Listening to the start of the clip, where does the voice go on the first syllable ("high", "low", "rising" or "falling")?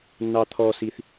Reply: high